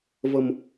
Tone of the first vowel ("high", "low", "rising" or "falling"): low